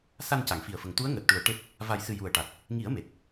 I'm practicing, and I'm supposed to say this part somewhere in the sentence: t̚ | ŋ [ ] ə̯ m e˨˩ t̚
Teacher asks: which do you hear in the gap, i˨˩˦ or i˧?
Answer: i˨˩˦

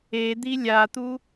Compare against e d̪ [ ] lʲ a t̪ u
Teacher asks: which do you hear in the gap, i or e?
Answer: i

